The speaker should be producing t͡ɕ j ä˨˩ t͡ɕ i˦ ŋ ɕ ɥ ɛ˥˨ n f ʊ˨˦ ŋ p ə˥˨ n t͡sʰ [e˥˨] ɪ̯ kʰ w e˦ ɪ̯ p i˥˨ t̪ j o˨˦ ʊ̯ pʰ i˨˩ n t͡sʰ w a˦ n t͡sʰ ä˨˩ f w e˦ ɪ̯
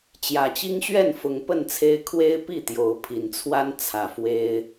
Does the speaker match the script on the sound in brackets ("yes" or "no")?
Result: no